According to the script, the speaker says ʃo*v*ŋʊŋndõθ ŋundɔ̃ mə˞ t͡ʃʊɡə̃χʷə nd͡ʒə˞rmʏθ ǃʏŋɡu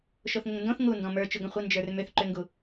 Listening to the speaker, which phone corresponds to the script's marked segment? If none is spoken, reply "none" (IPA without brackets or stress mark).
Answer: θ